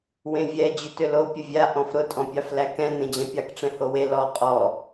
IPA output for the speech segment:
wẽvʲɛ d͡ʑʏtʏlo pʲəvʲa ʔɔ̃fɾʊ tʼɔ̃pʲɑflækɛ̃ nẽd͡ʑɛ̃pʲɑk ʈ͡ʂɛ̃howe lɔ qʼɔ

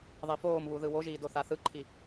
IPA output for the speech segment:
ðˤifoːmβu ðɯwoʒiːdo θaθɯǃʰi

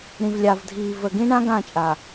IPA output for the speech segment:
ɾĩ˨vlʲa˨v dʱiː˨və˨ɡĩ˦ɳã˦ ɡã˦˨t͡ʃʼa˨

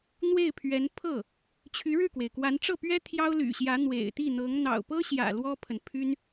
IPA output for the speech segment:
n̪we˥˩ɪ̯pʰɥɛ˧˥n pʰɤ˥˩ | t͡ɕʰy˧˥ɻɻ̩˥˩kwe˩ɪ̯kwa˧˥n ʈ͡ʂɤ˥˩pɥɛ˥ t̪ʰjɑ˥ʊ̯ly̰˨˩ɕjä˧˥ n̪wḛ˨˩ɪ̯t̪i˥˩n̪ɤ˧˥ŋ n̪ɑ̰˨˩ʊ̯pɤ˥ɕjä̰˨˩ lwɔ˥pʰə˨n pʰy˥n

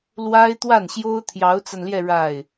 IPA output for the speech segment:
lwa˥ɪ̯t̪wa˥˩nɕjo˥ʊ̯ t̪ʰjɑ˧˥ʊ̯t͡sa˧nljɛ˥˧ ɻa˥˩ɪ̯

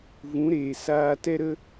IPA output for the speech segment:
vũ˨˦ɾeː˨ saː˧tɛ˦ɾə˦

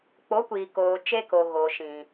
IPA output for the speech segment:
k͡po˨˦kʷiː˨koː˨ t͡ʃe˦ko˨ ɣo˨ʃĩ˨

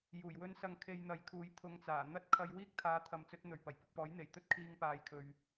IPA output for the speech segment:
juː˨˩j wɵ˥n sɐ˧ŋ kʰe˧jn̪ɐ˨˧jkʰuː˨˧j t̪ʰʊ˧ŋt͡saː˨˩ n̪ɐ˥t̚kʰɐ˧j wiː˥k̚t̪ʰaː˨˥ t̪ʰɐ˨˧mt͡sɵ˨˥t̚n̪ɵ˨˩ɥ pɐ˨˩jpɪ˨k̚pɔː˨˥j n̪e˨˩jt̪ɵ˥t̚ kʰiː˧ŋpaː˨jkʰɵ˨ɥ

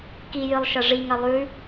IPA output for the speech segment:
kijɨlˠʃɐ ʐiŋɐ lˠʉ

